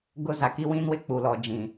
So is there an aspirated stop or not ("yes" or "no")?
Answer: no